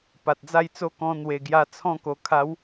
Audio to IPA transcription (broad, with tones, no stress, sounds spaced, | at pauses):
p a˨ t̚ d͡z a˥˧ j t͡s o˦ k ɔ̃˧ n̪ w e˨˩ ɡ j a˧ t͡sʰ ɔ̃˥˧ k o˨˩ kʰ a˨˦ w